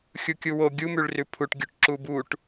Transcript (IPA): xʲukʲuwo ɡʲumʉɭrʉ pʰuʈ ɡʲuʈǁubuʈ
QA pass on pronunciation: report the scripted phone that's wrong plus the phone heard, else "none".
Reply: none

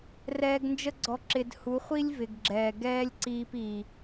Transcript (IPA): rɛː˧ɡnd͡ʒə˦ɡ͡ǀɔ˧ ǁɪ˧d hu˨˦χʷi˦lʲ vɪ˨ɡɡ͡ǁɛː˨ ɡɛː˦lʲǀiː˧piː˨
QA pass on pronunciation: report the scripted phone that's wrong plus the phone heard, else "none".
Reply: none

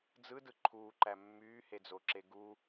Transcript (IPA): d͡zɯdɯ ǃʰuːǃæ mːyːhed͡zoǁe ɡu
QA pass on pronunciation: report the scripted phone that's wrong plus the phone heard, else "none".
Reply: none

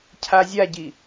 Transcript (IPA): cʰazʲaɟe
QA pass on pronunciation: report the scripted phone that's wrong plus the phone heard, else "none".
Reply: e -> i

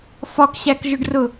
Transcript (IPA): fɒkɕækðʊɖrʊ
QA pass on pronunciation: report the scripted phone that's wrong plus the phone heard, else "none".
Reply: ð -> ʒ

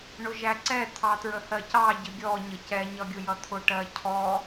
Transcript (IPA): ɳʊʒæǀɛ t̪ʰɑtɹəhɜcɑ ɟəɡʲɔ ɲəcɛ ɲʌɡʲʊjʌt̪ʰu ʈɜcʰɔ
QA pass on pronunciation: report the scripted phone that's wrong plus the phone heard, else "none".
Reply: u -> ʊ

